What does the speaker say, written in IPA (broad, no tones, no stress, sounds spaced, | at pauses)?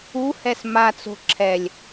u h ɛ s m a t͡s o̤ ǁʰ ɛ lʲ